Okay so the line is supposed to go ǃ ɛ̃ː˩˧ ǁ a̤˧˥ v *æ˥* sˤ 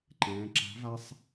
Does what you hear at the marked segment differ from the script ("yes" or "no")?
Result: yes